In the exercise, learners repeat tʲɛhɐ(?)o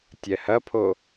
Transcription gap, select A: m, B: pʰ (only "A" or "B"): B